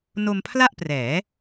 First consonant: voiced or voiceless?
voiced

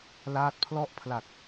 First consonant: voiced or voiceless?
voiced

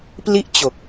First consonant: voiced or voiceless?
voiceless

